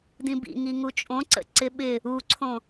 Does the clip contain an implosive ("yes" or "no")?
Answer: yes